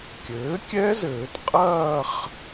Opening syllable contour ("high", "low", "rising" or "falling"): rising